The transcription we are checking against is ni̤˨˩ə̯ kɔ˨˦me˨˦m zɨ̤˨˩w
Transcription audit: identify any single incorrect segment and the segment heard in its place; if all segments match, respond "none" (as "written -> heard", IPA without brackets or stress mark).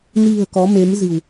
none